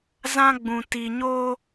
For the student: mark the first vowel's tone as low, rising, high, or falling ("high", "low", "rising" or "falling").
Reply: high